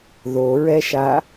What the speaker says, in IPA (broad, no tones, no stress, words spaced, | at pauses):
ðoɹɛʃa